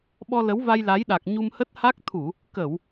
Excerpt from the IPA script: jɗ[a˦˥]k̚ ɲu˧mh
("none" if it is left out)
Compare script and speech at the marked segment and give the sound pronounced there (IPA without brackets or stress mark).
a˨˩